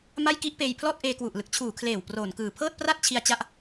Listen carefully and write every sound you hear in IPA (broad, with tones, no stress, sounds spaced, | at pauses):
m a˥˩ j k i˥˩ ʔ p eː˧ j pʰ l ɔː˥˩ t̚ ʔ eː˧ k w u˨˩ ʔ l ɯ˨˩ k̚ t͡ɕʰ uː˨˩ kʰ l eː˨˩ w p r oː˨˩ n k ɯː˨˩ pʰ ɤː˥˩ t̚ p r a˥˩ t̚ t͡ɕʰ i˧ a̯ t͡ɕ a˦˥ ʔ